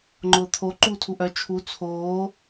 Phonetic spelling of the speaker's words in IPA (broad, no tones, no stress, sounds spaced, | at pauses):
ŋ͡ǃ ʊː t̪ʰ o ǃ uː tʰ u ʔ œ t͡ʃʰ u t͡sʰ oː